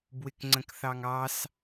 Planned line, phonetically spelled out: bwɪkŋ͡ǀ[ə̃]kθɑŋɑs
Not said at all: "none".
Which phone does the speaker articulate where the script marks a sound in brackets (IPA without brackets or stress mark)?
ə̃